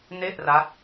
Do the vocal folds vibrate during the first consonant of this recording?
yes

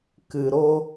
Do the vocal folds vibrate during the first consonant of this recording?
no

